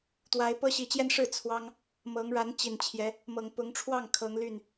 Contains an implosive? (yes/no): no